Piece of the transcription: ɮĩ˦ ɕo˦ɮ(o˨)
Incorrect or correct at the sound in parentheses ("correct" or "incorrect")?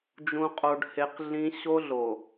correct